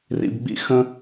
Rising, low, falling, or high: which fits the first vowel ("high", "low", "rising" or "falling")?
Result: low